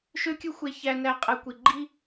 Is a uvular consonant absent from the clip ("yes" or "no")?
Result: no